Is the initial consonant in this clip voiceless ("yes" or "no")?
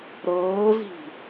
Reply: no